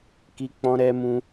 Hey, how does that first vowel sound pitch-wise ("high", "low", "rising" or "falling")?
high